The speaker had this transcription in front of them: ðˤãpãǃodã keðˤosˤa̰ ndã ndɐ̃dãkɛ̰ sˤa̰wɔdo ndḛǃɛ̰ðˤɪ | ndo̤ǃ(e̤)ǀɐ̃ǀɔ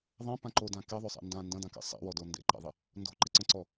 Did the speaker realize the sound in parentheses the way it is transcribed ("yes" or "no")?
no